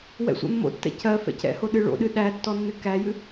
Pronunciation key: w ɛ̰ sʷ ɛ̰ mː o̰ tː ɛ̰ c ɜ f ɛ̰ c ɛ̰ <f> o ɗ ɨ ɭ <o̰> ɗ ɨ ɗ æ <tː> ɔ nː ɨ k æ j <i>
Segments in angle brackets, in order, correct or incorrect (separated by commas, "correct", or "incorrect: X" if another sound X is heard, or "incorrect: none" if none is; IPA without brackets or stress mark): incorrect: h, correct, correct, incorrect: ɨ